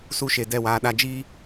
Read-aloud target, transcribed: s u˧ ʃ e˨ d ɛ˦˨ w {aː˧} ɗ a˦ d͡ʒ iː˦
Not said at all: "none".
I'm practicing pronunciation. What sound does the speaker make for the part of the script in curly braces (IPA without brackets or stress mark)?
aː˧